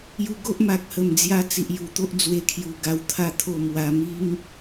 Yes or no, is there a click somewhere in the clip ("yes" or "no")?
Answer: no